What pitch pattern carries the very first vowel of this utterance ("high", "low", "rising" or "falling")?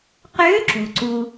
rising